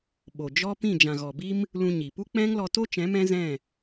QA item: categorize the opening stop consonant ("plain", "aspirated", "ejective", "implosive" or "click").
implosive